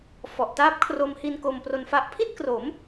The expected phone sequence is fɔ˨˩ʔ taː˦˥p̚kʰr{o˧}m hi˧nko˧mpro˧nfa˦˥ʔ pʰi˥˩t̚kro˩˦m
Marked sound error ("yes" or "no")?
no